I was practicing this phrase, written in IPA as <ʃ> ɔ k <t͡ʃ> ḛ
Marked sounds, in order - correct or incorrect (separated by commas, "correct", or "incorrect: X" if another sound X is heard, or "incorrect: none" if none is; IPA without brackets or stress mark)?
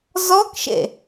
incorrect: z, incorrect: ʃ